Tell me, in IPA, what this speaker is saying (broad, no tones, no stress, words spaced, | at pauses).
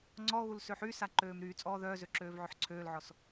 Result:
ŋ͡ǀɔɣul søħysa ǃøːmɾyːt͡sʼɔː ðœːzø ǁøːvʕøħǀʰøːlʕɔs